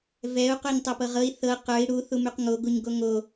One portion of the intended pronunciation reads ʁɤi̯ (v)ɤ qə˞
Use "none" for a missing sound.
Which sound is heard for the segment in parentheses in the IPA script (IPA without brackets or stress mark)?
θ